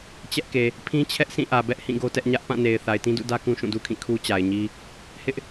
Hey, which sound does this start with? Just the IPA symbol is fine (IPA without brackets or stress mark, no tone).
t͡ɕ